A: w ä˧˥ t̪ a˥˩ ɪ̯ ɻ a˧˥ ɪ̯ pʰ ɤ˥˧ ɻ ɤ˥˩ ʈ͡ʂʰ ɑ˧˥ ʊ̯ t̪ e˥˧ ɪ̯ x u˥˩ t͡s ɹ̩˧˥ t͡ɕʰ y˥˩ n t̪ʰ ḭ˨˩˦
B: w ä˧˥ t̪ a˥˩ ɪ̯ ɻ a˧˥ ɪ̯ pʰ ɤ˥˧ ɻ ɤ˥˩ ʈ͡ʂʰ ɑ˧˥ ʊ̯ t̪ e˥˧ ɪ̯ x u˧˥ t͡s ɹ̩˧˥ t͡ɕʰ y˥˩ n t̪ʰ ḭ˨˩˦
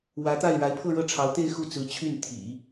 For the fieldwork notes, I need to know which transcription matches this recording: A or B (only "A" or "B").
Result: A